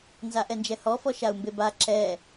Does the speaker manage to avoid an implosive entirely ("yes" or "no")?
yes